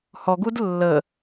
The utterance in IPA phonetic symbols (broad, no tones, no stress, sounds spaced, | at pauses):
h ɔ ɡ u d lː ə